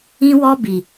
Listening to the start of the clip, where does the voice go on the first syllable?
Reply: high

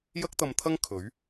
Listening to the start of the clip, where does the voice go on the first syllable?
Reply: high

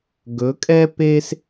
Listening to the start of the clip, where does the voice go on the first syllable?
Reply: rising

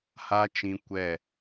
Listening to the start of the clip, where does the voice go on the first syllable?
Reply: high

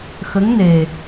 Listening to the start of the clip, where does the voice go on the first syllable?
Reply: rising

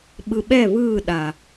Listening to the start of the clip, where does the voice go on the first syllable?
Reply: low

